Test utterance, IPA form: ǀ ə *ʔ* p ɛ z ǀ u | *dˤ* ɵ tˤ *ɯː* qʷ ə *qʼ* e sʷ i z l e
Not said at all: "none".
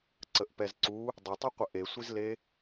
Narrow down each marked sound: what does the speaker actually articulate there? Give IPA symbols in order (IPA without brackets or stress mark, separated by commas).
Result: ʔ, dˤ, ɯ, ʔ